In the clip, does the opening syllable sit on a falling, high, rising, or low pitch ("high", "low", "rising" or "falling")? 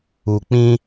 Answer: low